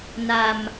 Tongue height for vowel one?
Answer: low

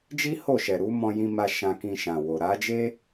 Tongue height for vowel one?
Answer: high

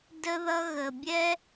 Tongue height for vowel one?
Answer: mid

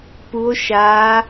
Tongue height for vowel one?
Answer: high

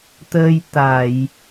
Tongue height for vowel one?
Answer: mid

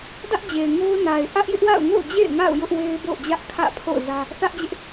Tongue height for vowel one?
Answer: low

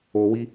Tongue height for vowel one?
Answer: mid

